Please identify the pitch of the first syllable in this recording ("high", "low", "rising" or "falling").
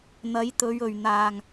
rising